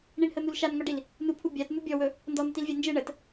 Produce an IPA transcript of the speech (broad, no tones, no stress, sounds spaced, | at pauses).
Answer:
ɳ i ɳ h ə n̪ u l ʃ a n ŋ ɔ ɖ i l | n u pʰ u bʲ a t n̪ u bʲ ɔ w ɵ | n d ɔ n̪ ə t i l vʲ a n d͡ʒ ɯ ɳ ə t